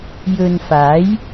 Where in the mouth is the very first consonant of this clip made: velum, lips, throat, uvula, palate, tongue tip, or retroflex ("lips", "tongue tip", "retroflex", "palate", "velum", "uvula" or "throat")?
palate